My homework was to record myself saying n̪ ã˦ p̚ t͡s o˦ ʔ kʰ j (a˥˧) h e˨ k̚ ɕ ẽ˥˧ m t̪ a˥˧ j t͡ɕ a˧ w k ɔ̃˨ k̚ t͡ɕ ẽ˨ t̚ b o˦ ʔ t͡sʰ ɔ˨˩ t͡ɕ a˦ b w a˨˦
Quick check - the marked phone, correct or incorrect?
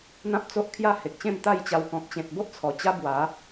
correct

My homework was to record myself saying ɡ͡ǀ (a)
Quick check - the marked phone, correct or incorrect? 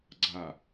correct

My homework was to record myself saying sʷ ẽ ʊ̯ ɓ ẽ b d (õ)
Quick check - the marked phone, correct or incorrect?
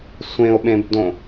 correct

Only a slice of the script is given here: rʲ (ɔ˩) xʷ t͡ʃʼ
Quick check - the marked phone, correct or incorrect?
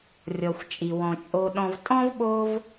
correct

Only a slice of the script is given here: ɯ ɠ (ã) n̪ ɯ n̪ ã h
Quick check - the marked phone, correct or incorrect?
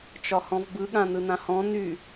correct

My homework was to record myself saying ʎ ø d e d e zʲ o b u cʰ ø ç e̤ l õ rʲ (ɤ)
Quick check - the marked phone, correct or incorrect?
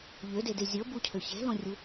incorrect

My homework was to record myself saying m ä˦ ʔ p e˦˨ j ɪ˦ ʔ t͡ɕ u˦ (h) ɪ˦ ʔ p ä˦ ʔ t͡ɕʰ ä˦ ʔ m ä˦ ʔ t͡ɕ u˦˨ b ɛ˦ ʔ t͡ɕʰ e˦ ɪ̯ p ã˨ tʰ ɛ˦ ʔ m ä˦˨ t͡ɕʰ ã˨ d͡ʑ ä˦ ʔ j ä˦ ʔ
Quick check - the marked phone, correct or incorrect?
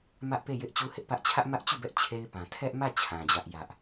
correct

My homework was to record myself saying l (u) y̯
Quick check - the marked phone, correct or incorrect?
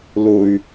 incorrect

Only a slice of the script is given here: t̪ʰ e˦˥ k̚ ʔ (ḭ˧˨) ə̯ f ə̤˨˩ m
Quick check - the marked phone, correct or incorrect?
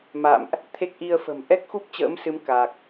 incorrect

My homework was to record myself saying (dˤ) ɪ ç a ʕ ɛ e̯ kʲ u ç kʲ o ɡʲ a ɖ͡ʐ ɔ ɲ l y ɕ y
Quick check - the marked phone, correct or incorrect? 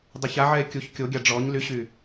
correct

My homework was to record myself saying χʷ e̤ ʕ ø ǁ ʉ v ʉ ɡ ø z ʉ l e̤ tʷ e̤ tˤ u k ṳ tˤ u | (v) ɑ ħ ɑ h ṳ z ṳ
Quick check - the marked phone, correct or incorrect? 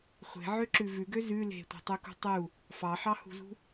incorrect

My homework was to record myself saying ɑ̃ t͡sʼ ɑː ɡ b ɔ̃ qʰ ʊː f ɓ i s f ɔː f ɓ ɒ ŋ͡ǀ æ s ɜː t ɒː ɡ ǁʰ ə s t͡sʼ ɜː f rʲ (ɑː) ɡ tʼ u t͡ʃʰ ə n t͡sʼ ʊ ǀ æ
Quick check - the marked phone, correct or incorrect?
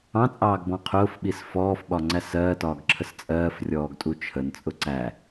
incorrect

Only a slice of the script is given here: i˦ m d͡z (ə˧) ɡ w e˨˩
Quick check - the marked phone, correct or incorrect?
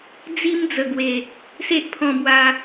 incorrect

